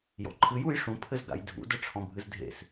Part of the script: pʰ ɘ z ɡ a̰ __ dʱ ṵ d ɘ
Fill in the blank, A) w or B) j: B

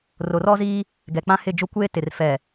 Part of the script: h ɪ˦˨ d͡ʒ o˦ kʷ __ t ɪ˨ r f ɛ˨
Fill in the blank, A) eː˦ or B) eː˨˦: A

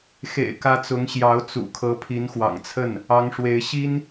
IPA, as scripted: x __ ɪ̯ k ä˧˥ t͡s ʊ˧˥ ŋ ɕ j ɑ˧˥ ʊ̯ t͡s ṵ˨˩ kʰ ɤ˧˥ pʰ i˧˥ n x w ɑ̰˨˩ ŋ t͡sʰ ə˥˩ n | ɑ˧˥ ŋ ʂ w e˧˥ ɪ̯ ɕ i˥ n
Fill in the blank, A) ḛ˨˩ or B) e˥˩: A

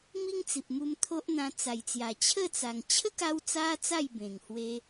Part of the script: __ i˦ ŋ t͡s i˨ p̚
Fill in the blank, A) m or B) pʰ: A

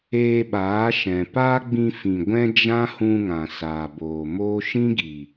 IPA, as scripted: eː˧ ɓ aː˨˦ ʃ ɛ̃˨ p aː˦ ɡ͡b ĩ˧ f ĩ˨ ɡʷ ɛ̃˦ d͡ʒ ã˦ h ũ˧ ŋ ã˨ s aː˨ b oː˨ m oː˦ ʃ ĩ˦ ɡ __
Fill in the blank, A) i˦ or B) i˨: B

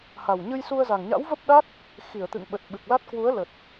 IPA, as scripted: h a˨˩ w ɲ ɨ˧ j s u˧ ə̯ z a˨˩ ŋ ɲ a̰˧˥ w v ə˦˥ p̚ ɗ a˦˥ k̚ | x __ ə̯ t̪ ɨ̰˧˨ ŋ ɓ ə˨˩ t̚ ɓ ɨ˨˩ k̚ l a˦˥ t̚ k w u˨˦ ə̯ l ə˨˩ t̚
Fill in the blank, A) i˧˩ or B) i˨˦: A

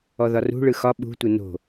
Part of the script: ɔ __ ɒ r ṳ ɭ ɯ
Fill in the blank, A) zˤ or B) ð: B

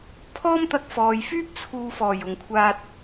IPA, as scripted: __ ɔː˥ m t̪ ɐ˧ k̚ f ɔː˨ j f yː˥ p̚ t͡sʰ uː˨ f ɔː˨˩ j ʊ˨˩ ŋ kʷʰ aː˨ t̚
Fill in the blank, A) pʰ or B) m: A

